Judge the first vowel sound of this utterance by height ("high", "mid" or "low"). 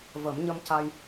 mid